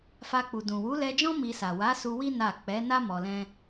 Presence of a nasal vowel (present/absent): present